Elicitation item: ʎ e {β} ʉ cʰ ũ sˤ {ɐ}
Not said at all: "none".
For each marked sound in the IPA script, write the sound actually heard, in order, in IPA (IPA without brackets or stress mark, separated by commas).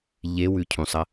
w, ɐ